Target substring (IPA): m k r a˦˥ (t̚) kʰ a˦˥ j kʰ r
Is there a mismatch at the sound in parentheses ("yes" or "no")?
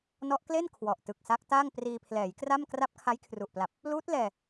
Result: yes